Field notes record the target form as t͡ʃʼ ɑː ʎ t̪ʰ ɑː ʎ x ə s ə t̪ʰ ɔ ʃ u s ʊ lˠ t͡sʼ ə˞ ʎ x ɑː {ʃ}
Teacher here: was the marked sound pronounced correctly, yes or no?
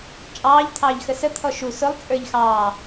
no